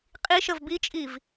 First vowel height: high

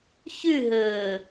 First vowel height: high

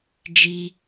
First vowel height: high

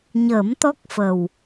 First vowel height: mid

